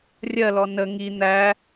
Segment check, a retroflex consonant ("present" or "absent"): absent